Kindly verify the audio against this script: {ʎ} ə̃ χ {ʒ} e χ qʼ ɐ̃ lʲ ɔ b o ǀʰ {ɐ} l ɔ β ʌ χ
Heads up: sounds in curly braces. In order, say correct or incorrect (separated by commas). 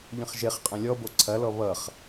correct, correct, correct